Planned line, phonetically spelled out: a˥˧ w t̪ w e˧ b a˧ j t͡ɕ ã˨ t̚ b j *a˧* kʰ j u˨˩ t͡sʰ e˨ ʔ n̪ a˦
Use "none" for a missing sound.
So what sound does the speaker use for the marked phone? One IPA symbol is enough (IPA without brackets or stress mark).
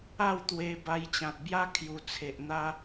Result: a˦